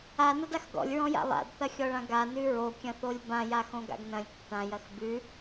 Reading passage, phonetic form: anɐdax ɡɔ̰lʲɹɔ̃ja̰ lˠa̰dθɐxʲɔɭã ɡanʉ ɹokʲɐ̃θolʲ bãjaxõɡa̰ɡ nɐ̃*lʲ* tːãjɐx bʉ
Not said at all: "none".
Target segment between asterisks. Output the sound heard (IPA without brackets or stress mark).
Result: lʲ